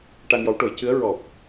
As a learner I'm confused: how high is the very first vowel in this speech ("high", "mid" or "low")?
low